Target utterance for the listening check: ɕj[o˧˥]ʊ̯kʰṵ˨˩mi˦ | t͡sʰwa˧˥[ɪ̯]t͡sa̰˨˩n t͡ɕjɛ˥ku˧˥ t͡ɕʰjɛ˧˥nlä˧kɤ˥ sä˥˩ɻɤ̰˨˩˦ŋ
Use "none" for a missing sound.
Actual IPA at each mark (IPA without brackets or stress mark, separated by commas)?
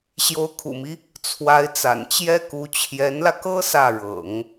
o˧˥, ɪ̯